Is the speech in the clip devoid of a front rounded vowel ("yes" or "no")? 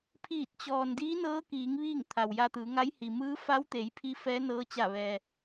yes